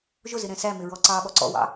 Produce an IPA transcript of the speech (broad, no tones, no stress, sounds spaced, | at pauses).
ʒ ʊ z ɪ ɾ ɛ̃ s æ m ɪ ɹ ɔ ǀ ɑ ɓ ɔ ǀ ɔ̰ w ɑ̰